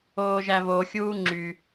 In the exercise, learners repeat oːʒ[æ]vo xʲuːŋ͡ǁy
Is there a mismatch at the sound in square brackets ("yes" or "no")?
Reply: no